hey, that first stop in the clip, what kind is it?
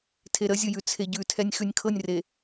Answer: aspirated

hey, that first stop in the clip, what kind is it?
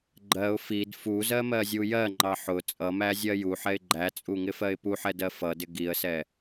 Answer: click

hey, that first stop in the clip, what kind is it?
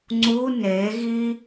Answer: click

